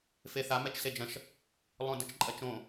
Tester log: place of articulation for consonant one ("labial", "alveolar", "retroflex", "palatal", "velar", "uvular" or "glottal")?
labial